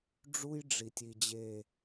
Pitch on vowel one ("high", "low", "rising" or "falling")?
high